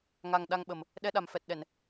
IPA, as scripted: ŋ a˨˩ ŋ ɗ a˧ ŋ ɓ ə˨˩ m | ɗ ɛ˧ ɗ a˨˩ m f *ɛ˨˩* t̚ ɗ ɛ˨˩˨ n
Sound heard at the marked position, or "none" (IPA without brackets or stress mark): ɛ˨˩